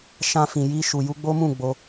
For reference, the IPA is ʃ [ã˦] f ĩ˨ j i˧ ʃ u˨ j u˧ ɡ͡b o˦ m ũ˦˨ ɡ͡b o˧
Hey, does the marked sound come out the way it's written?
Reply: no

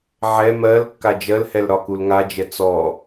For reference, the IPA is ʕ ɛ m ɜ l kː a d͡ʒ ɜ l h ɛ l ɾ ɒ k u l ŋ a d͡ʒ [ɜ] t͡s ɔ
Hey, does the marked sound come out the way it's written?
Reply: no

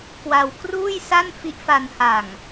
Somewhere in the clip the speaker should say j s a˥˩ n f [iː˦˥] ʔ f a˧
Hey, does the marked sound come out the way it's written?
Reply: no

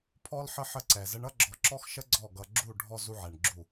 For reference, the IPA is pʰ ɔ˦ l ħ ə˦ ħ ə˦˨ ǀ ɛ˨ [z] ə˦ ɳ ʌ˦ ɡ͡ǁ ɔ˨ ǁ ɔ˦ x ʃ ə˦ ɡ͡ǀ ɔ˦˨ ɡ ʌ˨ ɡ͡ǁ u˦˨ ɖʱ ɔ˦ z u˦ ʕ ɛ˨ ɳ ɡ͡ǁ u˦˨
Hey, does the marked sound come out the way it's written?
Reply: yes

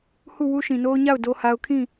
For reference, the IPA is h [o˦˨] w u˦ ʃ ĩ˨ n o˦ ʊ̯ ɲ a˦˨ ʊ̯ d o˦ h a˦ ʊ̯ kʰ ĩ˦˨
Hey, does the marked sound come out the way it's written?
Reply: no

